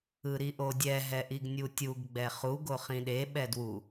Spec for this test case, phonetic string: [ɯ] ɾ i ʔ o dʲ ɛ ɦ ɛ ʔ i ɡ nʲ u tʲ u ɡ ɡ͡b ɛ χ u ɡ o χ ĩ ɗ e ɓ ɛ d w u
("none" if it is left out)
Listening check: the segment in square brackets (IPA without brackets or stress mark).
ɯ